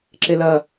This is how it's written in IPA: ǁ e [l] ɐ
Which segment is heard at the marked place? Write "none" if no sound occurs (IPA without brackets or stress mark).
l